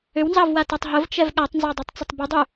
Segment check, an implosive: present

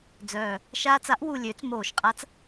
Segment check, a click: absent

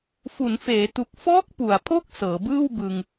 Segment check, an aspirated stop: present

